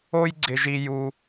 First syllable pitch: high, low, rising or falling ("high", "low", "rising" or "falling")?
high